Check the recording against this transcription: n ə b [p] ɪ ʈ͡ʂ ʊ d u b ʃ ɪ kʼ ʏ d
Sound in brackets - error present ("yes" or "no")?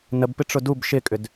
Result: no